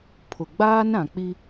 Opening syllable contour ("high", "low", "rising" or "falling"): low